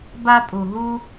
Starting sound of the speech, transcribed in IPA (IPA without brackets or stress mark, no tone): b